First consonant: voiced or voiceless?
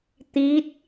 voiceless